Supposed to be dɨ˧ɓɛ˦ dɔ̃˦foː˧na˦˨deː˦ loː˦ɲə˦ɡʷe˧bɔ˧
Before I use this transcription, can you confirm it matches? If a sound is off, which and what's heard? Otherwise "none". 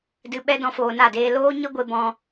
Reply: ɔ˧ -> ɔ̃˧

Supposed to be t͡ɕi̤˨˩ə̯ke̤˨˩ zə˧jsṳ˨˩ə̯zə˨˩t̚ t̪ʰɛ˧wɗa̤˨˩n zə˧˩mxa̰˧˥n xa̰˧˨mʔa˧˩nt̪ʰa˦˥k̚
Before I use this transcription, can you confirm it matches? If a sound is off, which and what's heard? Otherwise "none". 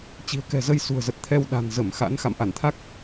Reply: e̤˨˩ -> ɛ̤˨˩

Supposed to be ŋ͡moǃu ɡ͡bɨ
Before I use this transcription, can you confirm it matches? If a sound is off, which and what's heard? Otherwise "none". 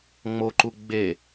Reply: ɨ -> e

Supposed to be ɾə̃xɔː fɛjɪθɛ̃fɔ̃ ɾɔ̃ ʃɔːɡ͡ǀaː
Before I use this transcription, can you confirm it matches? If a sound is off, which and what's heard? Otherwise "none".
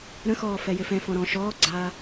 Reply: θ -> f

